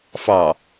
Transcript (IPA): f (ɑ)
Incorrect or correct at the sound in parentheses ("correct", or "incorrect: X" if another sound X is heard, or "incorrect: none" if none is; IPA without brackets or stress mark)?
correct